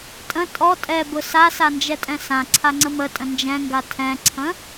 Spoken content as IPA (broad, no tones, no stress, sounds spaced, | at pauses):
tʼ ə̃ tʼ ɔ tʼ ɛ b ʊ s a s a n d͡ʒ ɛ tʼ ɛ̃ s ã ǀʰ a ŋ͡ǀ ə m ə tʼ ə̃ n d͡ʒ ɛ̃ ŋ ɡ a tʰ ɛ̃ ǀʰ ə̃